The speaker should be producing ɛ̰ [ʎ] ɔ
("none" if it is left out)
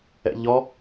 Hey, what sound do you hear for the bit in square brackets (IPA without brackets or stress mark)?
ʎ